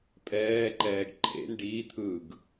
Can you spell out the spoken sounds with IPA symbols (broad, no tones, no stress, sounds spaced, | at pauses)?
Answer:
pʼ ɛː ǃ ɛː ɡ ǃʰ ḛ n ɖ iː t̪ʰ ɯː ɡ